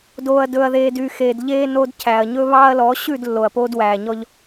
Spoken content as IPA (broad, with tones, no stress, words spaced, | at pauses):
doː˨ɐ̯dɵ˨ɐ̯ðeː˨dy˨ xeː˨dʎeː˦ no˦dcʰæ˨ɐ̯ ɲɵ˦βɑː˦ɐ̯lɔ˨˦ ɕʉ˦˨d lːo˨ɐ̯poː˦dwæː˨ɲɔ˦ʎ